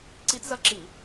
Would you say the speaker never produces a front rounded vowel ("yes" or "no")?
yes